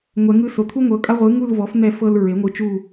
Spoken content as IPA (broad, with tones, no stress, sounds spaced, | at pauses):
ŋʷ ɛ˩˧ ŋ ɯ˦˨ s o˩˧ t̪ʰ u˦ ŋʷ ɤ˩˧ kʼ a˦ ʁʷ ɯ˩˥ ŋ u˦˨ l v ɔ˩˥ f n̪ ɛ˦ f ɤ˦ l ɹ e˩˥ ŋʷ ɯ˩˥ t͡ʃ u˦˨